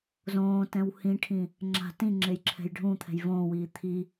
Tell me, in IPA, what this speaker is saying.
zõː tɛ̃whĩʈʰĩ | ŋ͡ǁa̤ tĩ ŋ͡ǁejǁʰɛ̤jɖʱũt̪ʰɛ̤j võːwiː t̪ʰi

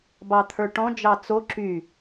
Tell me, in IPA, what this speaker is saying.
bɑt̪ʰə˞ʈɔ̃ d͡ʒɑt͡so ǁy

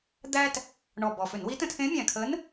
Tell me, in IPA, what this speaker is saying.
d̪æ˥t | ɳɔ˨˩ bɔ˨˩fʏ˧˩˧nwi˧˥ tə̃˧tʰẽ˧˥mʲæ̃˨˩ kʰə˧˥n

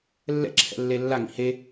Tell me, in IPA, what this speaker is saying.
lːɛ̰ǁʰɛ̰lːe lːaŋḭ he

